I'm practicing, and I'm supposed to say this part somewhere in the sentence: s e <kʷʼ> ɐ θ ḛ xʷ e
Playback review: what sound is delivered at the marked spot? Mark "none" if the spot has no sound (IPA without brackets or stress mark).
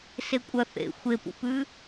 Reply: kʷʼ